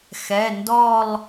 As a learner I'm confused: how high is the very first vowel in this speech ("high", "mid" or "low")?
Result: mid